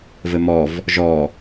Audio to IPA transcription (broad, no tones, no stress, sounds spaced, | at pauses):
v ɘ m ɔ v | ʒ ɔ